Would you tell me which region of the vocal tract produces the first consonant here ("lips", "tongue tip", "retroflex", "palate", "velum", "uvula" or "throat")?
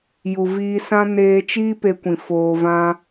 palate